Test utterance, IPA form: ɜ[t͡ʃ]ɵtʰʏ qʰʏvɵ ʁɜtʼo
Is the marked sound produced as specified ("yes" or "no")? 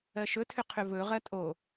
no